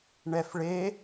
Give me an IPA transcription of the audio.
ɳ ɛ f ɭ e

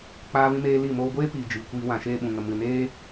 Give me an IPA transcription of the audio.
k͡p aː˦ v ĩ˦ m eː˦ l i˦˨ m oː˧ ɡʷ eː˦ p iː˨ d͡ʒ iː˨ kʷ iː˧ w ã˨ ʃ eː˧ ɓ ũ˨ ŋ ə˨ m ɨ˨ n eː˦

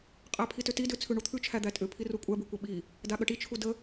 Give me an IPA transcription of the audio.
qʼ æ pʰ i t ʏ t i d ʏ t͡sʰ ʉ ɳ u t̪ʰ ʉ t͡ʃʰ æ d̪ æ tʼ ʏ pʰ i r u kʷʼ æ b ʉ kʷ ə ɓ i | d a ɠ ə ʈ i t͡ʃʰ u d ə

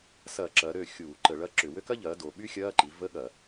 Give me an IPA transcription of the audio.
s ɐː˧˩˧ ǁ ɐː˩˧ ɾ ø˥˩ xʲ uː˧˩˧ ǃ ə˧˩˧ ɭ ɐ˧˥˧ ǁ ʏ˧˩˧ w ø˥ k ɐ˥ ʎ ɐː˩˥ d o˩˧ ɓ y˥ xʲ ɐː˧˥˧ ǃ i˩˥ v ə˧˥˧ ɠ ɐ˧˩˧

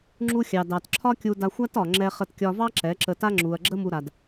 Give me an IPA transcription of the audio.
ŋ͡ǁ u˧ xʲ ɑ˨ d ɑ˨ t ǁʰ ɒ˦ kʲ u˧ d a˧ xʷ a˦ t ɒ˨ ŋ͡ǁ ɛ˧ χ ə˧ t kʲ ɒ˧ v ɑ˦ ǁ ɛ˨˦ ǁ ə˧ t a˦ ŋ͡ǁ u˨ ɐ̯ ɡ͡ǁ ə˦ m u˧ ɾ a˨ d

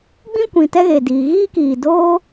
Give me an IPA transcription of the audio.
ɡ͡b ĩ˦ kʷ ĩ˨ t ɛ˦ ɣ e˨ d iː˨ ɣ iː˦ k iː˨ d oː˦

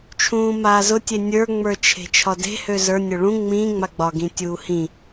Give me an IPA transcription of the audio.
t͡ʃʰ ũː m aː z ʊ tʲ e nʲ ə˞ ŋ͡m ə˞ t͡ʃʰ e̤ t͡ʃʰ ɒ d e̤ h ø z ə˞ nʲ ʊ ɭ ũ ŋ͡m ĩ ŋ͡m a ɡ͡b ɒ ɡ ĩ tʲ uː h ĩ

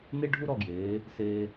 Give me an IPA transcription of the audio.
n e˥ ɖʱ u˥ ɾ ɔ˥˧ ɡ j eː˩˧ | s eː˧

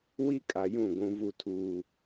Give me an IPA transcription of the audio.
w i˦ kʼ a˨ j ũ˦˨ ɡʷ ũ˦ v u˦ tʰ uː˦

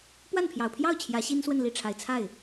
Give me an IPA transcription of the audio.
p w a˥˩ n pʰ j ɑ˨˩ ʊ̯ pʰ j ɑ˥˩ ʊ̯ t͡ɕʰ j ä˧˥ ɕ i˥ n s w ə˥˧ n l i˥˩ ʈ͡ʂʰ a˨˩ ɪ̯ t͡sʰ a˥˩ ɪ̯

